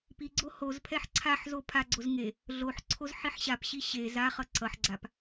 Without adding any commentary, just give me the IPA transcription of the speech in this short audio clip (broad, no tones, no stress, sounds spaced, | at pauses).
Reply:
p i ɡ͡ǀ o h o z pʰ ɛ ħ ǀʰ a ħ z o pʰ a ɡ͡ǀ o z ŋ e | ɮ o ħ ǀʰ o z ħ i ħ ɕ a p ɕ i ɕ e z a χ ʌ ǀ ʌ ħ ɡ͡ǀ a p